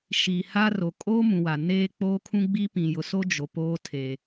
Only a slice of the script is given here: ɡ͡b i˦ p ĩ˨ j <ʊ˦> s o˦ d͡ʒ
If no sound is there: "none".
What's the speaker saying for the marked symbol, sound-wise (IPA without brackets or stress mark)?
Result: ʊ˨